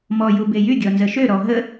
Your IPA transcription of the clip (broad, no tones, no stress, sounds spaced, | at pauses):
m ɔ j u b e j y ɡʲ ɔ n z ə ʃ ø ɾ ɔ ɦ ə